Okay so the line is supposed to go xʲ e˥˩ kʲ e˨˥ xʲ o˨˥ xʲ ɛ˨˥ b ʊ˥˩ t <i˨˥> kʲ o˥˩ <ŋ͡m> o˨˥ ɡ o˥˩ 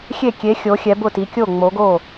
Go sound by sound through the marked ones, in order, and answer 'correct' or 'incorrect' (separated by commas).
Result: correct, correct